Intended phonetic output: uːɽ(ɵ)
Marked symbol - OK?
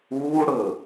yes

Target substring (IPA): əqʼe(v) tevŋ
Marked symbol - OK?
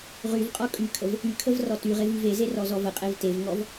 yes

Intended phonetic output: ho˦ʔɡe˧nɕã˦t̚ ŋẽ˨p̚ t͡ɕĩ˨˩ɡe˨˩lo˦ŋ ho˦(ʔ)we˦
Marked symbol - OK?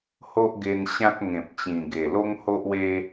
yes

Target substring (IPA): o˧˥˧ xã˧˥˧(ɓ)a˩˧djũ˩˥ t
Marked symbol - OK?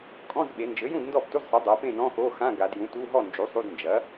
no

